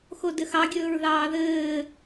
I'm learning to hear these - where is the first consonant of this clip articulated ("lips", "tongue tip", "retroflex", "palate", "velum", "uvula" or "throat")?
velum